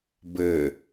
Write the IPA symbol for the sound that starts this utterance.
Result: b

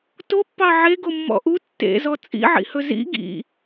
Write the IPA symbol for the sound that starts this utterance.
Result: t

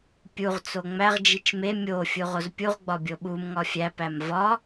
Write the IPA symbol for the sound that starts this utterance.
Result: pʲ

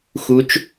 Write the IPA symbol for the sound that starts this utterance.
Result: x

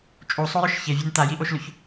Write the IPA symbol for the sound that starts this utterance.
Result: t͡ʃʼ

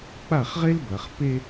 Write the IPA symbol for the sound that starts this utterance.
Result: k͡p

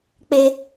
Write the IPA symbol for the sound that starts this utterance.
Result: k͡p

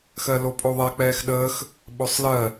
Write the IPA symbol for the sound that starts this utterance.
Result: x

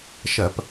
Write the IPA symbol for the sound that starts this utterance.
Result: ʃ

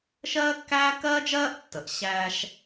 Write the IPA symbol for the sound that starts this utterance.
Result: ʃ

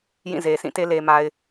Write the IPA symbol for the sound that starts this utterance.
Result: j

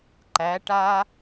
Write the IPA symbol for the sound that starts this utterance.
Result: ǃ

